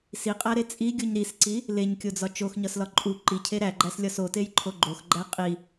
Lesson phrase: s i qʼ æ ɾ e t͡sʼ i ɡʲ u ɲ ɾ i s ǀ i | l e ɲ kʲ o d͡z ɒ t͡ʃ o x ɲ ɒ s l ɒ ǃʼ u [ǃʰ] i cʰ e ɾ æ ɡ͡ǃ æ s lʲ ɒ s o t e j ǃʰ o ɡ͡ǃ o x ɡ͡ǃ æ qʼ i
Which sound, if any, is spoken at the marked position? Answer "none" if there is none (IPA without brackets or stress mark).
ǃ